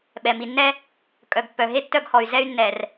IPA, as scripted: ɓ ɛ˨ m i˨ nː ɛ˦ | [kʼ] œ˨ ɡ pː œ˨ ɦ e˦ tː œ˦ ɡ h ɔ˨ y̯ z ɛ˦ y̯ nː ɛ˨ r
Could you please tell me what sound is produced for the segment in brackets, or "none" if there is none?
kʼ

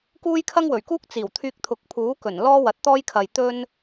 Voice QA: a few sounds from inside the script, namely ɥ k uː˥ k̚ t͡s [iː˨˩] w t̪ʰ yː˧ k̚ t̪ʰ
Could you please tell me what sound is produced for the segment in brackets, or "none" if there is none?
iː˨˩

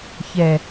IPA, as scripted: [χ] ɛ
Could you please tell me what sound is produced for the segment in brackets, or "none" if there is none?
ç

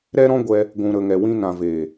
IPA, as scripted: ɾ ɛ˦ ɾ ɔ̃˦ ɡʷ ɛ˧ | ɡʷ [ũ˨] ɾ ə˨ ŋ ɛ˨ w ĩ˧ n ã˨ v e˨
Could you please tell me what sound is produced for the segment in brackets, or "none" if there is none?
ũ˨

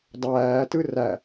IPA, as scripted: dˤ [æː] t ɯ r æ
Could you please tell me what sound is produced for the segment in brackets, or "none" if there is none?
æː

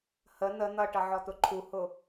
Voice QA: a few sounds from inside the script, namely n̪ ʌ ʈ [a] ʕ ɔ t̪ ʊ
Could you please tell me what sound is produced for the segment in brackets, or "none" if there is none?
ʌ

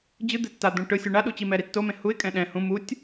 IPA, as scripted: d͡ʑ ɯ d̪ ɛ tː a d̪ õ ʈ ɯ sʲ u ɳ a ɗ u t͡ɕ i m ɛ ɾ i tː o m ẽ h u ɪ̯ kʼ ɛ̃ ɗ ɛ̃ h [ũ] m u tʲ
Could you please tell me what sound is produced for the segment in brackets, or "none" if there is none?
ũ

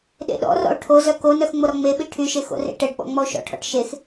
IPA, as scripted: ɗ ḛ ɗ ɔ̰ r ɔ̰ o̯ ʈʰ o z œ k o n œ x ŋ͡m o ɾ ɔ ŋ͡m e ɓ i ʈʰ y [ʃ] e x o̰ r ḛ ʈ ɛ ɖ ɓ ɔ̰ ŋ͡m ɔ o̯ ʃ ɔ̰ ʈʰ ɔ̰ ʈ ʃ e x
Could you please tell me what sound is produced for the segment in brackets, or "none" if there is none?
ʃ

